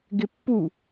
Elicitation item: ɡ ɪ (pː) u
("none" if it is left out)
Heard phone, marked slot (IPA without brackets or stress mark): pː